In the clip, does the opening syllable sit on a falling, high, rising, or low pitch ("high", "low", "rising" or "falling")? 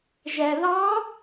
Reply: low